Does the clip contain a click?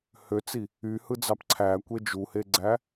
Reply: yes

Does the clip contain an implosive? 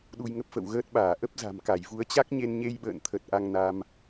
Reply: yes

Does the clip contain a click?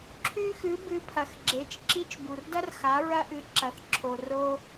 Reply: yes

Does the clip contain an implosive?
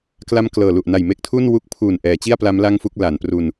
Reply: no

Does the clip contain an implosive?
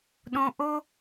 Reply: yes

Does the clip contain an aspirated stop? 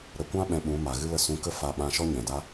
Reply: no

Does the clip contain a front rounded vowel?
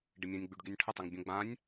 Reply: yes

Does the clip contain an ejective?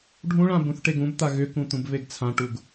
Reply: no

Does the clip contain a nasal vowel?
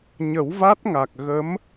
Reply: no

